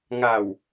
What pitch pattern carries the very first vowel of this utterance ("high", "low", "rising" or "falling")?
low